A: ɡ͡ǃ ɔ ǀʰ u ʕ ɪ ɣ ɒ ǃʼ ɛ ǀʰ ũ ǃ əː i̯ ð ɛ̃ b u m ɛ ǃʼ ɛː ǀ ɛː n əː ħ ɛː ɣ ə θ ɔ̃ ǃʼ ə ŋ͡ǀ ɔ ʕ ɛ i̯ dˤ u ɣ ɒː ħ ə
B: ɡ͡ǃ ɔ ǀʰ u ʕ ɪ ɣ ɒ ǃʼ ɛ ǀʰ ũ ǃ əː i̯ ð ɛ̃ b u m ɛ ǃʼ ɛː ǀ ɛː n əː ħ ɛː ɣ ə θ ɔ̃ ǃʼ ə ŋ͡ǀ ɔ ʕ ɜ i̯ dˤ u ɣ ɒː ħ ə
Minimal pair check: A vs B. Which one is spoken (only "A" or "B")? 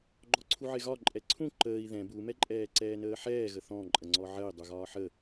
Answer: B